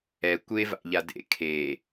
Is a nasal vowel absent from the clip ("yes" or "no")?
yes